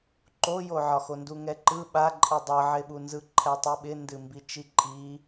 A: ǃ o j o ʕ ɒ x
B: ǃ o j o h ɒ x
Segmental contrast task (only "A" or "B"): A